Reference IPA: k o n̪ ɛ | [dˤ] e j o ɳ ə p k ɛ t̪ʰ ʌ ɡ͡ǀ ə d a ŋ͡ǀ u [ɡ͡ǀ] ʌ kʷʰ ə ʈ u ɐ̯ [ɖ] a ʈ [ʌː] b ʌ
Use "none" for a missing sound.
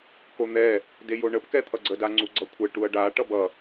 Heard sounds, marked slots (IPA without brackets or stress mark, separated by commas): d, ɡ͡ǀ, ɖ, ʌ